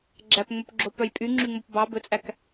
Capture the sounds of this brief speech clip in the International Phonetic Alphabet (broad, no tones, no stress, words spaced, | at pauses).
ɡ͡ǁæpŋ͡mɵpɡ͡ǁo pœjpʼyŋ͡ǁyŋ͡mop bɑ bɵt͡sʼæk